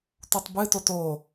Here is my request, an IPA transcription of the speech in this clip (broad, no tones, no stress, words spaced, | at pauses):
tutˤbɨ totoː